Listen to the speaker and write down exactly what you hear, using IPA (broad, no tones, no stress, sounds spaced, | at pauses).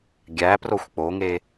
ɡʲ æ p r o xʷ k͡p o ŋ e